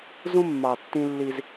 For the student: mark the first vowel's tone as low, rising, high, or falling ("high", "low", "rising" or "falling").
high